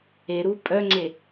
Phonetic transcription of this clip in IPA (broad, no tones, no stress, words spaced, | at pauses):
eɾu pʼœŋ͡ǀe